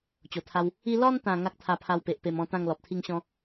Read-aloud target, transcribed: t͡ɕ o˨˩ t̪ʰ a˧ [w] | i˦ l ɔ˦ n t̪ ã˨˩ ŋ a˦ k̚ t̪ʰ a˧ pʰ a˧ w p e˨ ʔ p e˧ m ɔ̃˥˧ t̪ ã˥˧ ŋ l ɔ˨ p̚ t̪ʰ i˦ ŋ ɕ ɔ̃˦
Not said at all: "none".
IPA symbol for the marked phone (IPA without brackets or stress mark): w